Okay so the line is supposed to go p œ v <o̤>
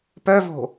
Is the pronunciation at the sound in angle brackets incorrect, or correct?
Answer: correct